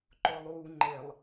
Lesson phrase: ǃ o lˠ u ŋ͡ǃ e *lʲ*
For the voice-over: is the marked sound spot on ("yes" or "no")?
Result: no